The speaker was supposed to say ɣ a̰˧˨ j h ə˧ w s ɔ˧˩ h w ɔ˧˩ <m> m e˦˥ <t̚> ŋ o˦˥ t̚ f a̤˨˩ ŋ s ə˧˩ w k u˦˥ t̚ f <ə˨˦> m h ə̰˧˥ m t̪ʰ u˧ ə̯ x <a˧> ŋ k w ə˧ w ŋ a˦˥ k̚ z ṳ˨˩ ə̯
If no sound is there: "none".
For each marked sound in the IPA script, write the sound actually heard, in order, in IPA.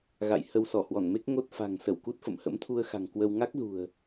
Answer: n, k̚, ə̰˧˨, a̤˨˩

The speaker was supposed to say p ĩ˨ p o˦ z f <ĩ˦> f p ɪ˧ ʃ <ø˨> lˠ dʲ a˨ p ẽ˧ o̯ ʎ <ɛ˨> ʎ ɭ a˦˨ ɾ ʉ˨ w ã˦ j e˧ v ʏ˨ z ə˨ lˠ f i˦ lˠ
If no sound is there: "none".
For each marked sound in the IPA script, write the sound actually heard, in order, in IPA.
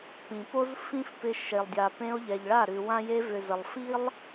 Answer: ĩ˦, e˨, ɛ˨

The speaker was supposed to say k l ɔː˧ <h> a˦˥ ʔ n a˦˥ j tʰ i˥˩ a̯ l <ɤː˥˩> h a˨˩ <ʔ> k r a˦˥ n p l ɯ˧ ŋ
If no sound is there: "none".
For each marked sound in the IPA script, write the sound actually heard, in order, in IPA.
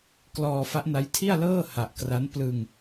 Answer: f, ɤː˥˩, ʔ

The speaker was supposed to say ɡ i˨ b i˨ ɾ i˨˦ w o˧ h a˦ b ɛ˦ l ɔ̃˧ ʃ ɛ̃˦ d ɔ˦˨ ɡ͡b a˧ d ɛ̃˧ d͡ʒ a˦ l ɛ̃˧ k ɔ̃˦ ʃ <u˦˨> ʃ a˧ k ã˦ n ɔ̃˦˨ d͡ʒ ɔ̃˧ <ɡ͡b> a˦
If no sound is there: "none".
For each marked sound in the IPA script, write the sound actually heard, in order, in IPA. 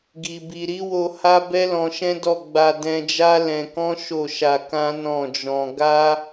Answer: o˦˨, ɡ

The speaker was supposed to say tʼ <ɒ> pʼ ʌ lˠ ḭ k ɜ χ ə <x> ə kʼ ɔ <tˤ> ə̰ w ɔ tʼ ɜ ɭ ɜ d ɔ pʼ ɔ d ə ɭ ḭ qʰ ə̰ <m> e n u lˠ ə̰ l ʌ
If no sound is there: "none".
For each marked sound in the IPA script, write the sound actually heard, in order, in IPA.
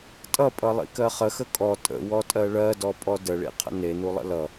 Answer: ʌ, x, tʼ, n

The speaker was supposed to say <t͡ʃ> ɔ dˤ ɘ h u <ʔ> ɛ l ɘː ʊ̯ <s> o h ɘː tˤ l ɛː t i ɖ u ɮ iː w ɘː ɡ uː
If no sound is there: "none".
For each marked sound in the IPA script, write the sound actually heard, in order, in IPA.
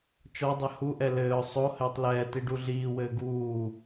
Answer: t͡ʃ, ʔ, sˤ

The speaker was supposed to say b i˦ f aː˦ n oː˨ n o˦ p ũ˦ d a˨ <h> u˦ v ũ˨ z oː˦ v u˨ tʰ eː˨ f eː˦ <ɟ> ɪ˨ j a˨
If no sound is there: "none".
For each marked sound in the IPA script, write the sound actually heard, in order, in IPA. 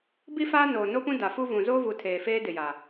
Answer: f, d

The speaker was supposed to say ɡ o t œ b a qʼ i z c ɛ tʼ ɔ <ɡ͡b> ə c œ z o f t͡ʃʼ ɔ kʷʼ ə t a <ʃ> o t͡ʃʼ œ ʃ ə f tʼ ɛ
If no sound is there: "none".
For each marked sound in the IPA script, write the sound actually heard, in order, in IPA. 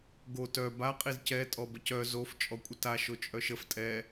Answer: b, ʃ

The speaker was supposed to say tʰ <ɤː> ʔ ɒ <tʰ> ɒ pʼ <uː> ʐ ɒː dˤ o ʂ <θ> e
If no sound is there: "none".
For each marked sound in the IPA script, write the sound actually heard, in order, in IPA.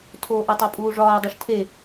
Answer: oː, tˤ, uː, tʰ

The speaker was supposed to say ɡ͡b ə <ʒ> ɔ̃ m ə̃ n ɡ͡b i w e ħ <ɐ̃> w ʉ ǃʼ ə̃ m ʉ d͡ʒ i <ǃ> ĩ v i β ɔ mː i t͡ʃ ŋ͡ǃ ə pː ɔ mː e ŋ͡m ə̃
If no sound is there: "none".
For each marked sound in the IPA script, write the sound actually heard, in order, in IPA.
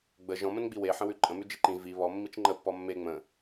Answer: ʒ, ə̃, ǃ

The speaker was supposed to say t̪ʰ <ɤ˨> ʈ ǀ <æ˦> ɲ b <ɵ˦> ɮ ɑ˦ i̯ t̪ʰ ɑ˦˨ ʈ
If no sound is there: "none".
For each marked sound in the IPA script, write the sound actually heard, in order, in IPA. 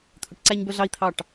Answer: ɵ˨, æ˦, œ˦

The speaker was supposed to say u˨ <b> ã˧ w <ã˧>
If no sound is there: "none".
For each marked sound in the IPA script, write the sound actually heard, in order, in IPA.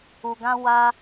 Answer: ɡ, a˧

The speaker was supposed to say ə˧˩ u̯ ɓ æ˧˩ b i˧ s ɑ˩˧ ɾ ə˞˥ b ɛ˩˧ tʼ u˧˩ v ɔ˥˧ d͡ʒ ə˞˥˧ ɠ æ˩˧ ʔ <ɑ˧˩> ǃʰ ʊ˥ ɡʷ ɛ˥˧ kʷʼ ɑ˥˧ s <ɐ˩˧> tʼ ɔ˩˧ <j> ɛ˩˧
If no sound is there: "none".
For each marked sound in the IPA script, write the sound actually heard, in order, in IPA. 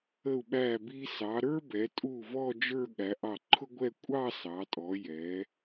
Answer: ɑ˧˩, ɑ˩˧, j

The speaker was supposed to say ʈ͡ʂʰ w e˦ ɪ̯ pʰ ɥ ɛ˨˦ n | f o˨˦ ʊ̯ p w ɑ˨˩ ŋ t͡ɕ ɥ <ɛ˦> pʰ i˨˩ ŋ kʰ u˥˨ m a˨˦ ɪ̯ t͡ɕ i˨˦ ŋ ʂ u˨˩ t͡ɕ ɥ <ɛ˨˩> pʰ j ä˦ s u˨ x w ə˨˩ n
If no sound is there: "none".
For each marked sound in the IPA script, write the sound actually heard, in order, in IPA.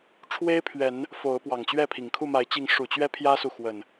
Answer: ɛ˥˨, ɛ˦

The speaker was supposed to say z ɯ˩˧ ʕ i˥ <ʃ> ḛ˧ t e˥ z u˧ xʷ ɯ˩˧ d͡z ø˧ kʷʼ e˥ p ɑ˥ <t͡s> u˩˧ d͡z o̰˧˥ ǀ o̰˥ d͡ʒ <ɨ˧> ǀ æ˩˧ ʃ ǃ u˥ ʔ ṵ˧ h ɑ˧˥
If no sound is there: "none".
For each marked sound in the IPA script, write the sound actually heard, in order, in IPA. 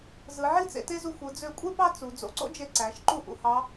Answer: t͡s, t͡s, e˧

